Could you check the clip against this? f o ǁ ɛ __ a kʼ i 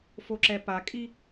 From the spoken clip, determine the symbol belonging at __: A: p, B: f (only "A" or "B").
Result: A